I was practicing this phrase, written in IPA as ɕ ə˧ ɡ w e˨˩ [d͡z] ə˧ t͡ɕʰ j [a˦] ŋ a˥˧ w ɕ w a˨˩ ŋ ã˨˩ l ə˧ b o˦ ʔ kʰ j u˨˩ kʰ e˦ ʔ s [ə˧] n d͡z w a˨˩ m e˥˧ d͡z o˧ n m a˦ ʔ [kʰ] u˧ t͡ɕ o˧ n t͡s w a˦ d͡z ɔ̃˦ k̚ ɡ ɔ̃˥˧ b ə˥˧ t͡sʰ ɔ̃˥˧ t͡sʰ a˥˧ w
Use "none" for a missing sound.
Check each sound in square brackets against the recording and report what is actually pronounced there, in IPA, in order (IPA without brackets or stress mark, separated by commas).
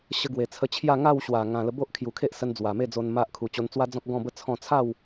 t͡sʰ, a˥˧, ə˧, kʰ